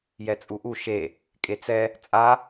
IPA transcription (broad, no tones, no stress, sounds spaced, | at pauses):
j ɛ t͡sʼ u ʔ u ʃ e | kʼ e t͡s ɛ | t͡sʼ a